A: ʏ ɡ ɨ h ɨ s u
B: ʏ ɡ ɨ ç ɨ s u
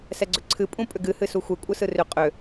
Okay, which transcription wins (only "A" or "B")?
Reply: A